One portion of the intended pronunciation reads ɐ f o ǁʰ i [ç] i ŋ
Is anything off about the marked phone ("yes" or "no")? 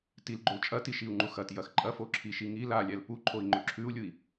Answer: yes